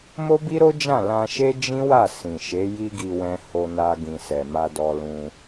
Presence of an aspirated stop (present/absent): absent